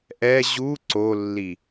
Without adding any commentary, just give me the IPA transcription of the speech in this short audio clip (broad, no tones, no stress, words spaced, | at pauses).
ʔɛ ʑu ǀolːi